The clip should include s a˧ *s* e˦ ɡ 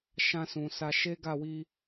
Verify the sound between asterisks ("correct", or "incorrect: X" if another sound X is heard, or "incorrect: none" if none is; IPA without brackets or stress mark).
incorrect: ʃ